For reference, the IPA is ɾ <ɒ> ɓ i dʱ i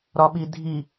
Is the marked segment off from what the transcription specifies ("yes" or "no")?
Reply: no